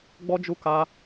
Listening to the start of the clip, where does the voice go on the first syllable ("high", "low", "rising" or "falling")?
high